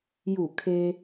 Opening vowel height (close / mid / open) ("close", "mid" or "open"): close